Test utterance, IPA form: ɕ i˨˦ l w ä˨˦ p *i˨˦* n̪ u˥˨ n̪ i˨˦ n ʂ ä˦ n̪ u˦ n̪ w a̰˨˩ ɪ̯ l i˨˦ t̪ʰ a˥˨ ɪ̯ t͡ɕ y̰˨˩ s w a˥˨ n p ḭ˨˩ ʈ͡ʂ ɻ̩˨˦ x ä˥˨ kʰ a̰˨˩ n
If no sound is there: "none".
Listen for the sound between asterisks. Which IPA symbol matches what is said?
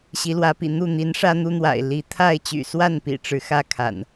ḭ˨˩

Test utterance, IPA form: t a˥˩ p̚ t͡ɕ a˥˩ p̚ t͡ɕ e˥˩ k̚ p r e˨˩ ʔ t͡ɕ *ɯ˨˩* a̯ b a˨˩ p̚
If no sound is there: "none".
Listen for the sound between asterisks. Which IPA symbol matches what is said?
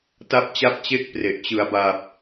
ɯ˩˦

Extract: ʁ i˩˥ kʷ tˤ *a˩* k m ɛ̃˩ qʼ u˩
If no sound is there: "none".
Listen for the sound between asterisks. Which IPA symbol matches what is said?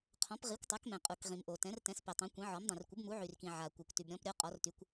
a˩˥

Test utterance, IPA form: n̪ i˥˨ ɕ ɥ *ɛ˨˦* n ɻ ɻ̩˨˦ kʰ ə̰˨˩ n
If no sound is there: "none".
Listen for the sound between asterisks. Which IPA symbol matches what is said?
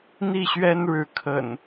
ɛ˦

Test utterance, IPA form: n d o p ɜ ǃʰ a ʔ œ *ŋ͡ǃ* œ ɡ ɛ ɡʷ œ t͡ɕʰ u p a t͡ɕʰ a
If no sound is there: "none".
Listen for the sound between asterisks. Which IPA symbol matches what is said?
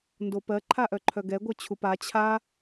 ǃʰ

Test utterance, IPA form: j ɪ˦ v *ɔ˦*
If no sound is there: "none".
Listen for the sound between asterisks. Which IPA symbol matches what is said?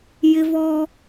ɔ˦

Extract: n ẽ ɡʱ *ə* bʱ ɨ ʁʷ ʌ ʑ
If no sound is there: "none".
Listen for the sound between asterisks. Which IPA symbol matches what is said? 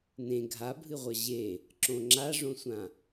a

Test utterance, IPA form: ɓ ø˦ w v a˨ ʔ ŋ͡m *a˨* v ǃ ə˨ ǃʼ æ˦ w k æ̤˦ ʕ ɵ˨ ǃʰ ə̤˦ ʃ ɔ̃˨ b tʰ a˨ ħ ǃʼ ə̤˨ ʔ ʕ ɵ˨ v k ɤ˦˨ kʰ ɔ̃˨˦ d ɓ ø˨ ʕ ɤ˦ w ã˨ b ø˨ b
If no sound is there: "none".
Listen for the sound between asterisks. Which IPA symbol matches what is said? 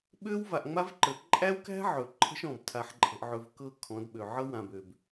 a˦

